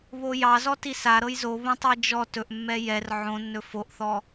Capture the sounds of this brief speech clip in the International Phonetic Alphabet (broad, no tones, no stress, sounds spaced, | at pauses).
β o j ɑ z ɔ t i s a ɾ ɤ j z o β ə̃ tˤ i d͡ʒ ɔ t ɵ ʔ mː ɛ j ɛ r ʕ õ nː ɵ f o ʔ θ ɔ